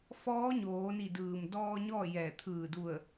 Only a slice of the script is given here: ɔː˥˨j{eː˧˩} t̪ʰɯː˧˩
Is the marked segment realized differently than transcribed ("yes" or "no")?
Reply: yes